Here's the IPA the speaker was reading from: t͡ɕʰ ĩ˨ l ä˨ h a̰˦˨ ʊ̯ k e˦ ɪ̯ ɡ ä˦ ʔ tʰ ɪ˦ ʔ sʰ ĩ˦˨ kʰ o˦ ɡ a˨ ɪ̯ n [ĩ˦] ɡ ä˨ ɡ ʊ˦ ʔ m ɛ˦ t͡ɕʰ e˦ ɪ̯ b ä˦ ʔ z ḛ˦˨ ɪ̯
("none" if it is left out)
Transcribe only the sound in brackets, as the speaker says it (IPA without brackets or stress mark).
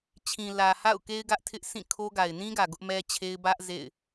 ĩ˦